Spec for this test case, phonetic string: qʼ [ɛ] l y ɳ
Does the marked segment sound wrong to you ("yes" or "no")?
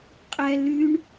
no